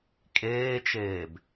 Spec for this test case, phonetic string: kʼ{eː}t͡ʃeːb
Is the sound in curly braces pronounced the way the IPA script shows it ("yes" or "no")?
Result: yes